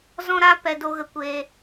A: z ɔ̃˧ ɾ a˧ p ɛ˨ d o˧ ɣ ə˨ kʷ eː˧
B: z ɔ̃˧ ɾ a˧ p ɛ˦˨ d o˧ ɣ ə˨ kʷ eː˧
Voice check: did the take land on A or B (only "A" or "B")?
A